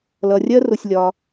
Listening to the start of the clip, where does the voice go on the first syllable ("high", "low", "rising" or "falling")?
low